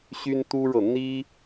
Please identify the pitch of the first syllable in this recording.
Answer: high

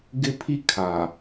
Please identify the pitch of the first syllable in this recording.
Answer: high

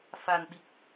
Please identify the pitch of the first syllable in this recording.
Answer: low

